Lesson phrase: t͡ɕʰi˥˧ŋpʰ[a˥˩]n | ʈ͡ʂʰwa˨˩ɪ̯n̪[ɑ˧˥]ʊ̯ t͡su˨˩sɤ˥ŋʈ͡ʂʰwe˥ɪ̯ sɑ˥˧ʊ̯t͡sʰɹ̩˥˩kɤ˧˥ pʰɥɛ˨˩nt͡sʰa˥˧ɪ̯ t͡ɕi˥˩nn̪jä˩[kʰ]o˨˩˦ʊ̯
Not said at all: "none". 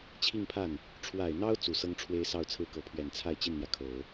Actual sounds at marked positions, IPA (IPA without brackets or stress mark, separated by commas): a˥˩, ɑ˥, kʰ